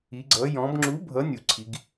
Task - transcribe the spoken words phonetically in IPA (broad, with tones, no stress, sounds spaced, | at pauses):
i˩˧ ɡ͡ǀ ʌ˩˧ j ɔ̃˩˧ b ŋ͡ǁ u˨˥ bʱ ʌ˨˥ nʲ u˩ ǀʰ i˩˧ ɡ